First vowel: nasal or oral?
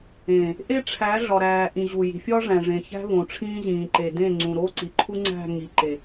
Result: nasal